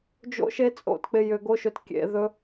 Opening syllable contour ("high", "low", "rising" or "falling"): high